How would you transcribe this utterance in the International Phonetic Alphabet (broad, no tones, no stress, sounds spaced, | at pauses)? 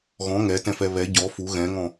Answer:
ɣ ɔ̃ ŋ ɛ t ɛ̃ f ɛ β ɛ ɟ ɔ f u ɣ ɛ̃ ŋ ɔ̃